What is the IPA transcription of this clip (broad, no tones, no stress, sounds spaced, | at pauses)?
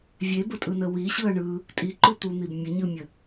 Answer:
vʲ e b ə tʼ ɯ n ə w i ɕ ɯ ɐ̯ ɳ ɯ | tʼ i ǃ u t̪ u n̪ i b mʲ ə ɲ ɯ mʲ ə